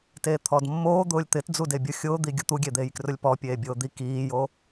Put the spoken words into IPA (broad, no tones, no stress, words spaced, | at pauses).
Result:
teːt̪ʰɔdmːoː d̪ʊːlʲt̪ɪt d͡zudebʲʊ xʲʊːd̪iɡʲʊ t̪uɡʲed̪eːj krʊlʲpɔ pʲeːbʲʊːd̪i kiːjo